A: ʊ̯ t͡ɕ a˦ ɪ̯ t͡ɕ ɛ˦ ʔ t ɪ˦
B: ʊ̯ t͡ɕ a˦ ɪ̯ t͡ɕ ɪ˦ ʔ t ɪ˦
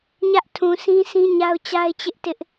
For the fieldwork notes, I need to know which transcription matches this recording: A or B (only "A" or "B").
B